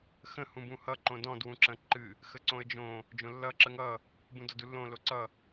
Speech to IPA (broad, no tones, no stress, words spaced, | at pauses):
xə̃ hũbũhʌ ǃõdɔ̃d wũǁə̃ ǃɨ | xəǀõə̯d͡ʒõ | d͡ʒõlːʌ ǁəŋʌ | bũdɔdulːõ loǀʌ